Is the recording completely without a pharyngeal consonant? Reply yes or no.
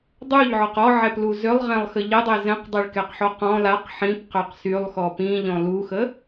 no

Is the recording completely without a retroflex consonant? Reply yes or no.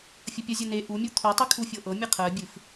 yes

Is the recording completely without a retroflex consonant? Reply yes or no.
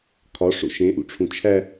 no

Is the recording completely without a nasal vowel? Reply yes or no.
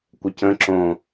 no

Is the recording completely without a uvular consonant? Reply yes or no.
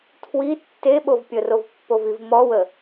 yes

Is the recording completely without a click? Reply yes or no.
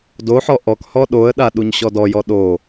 yes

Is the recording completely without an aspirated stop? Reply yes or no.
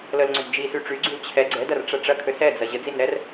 no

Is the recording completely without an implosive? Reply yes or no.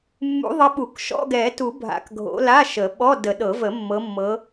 no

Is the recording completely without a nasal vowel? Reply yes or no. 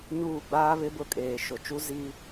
yes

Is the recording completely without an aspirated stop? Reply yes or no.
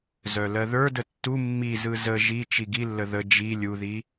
yes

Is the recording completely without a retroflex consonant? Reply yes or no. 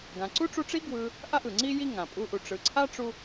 no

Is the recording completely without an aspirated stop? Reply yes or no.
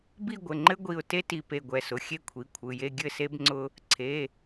no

